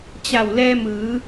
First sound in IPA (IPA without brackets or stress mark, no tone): t͡ɕ